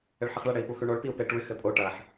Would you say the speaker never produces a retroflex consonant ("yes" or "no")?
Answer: no